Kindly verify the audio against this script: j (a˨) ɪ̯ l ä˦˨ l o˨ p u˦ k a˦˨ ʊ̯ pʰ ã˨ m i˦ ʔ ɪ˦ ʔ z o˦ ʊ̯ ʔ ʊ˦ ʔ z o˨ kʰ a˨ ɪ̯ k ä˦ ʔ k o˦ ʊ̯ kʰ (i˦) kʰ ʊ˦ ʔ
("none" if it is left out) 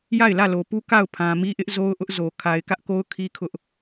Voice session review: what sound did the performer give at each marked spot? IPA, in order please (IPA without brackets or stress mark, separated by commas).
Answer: a˦˨, i˦